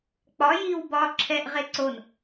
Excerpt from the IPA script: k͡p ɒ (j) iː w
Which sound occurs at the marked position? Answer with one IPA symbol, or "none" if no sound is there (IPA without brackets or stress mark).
j